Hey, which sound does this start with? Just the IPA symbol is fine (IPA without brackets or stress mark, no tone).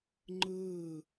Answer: ŋ͡ǃ